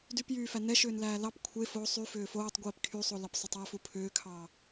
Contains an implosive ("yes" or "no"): no